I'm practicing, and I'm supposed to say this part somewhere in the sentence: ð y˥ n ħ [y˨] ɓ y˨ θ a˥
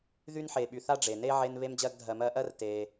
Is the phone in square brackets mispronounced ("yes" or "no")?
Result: yes